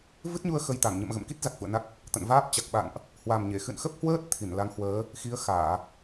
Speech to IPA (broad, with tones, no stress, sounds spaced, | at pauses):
v ɨ˦˥ t̚ ɲ u˧ ə̯ x ə˧ j t̪ a˧˩ ŋ ɲ ə̰˧˨ m ɣ ə̰˧˨ m k i˦˥ t̚ z a˨˩ k̚ f ṵ˧˨ ə̯ n a˦˥ k̚ | t̪ ə̰˧˨ n v aː˦˥ p̚ t͡ɕ a˨˩ k̚ ɓ a̰˧˨ n ʔ | h w a˨˩ m ɲ e˧˩ x ɨ̰˧˨ n x ə˦˥ p̚ h w əː˦˥ t̚ t̪ʰ i˧˩ n l a˨˦ ŋ h w əː˨˦ | x i˨˦ ə̯ x aː˧˩˨